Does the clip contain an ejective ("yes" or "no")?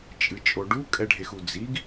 yes